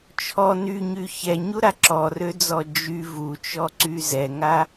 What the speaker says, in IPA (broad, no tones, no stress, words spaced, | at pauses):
t͡ʃʰɔ nyɲy çɛɲuɾa ǁɔrød͡zɔ d͡ʒy vut͡ʃɔǀy zɛŋa